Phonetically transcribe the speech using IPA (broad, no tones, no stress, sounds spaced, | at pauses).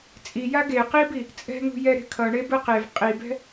t͡sʼ i j a ɡ e q i b i | t͡sʼ ɛ̤ ŋ ṳ j ɛ ɾ e̤ kʰ ʌ ɳ e b ɯ q e v qʼ i b ɛ̤